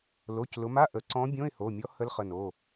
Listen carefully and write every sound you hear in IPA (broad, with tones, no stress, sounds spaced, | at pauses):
l o˩˧˩ c l ʊ˩˧ m a˧˥˧ ʔ ə˩˧ ǀ ɔ̃˧˥ bʲ õ˧˥˧ ɪ̯ h o˩˧˩ mʲ ɔ˧˥ h ə˧˥ l χ ə˩˧˩ n o˩˧˩